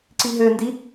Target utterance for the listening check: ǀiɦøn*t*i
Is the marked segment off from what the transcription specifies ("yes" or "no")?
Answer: yes